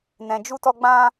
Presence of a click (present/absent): absent